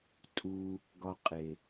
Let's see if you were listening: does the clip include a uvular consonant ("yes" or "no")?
yes